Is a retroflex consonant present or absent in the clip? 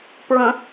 absent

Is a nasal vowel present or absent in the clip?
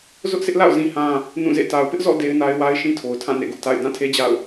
present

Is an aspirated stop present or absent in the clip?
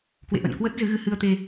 absent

